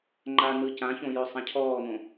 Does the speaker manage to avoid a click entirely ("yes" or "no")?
no